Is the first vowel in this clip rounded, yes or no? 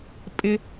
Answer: no